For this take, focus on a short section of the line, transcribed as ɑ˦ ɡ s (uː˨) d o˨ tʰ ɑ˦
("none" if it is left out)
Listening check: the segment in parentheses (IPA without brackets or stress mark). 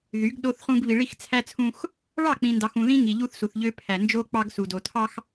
u˨